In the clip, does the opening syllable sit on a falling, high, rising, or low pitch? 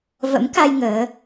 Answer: rising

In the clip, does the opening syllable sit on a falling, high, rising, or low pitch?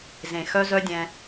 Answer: low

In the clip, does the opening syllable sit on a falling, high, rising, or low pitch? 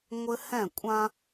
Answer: high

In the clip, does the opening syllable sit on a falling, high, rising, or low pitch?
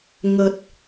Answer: low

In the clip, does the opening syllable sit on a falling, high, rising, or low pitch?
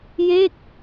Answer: falling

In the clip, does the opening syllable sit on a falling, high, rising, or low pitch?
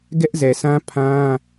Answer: high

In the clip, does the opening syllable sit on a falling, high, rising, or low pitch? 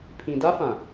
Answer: low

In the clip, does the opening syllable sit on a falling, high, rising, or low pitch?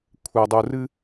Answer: low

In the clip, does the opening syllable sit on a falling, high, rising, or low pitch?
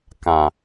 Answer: low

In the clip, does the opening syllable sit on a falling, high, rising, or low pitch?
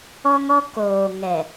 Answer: high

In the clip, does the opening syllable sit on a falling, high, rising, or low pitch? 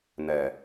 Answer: low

